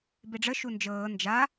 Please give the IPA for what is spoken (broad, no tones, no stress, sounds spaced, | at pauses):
b e ɖ͡ʐ ə ʃ u n d͡ʒ ɤː n d͡ʒ a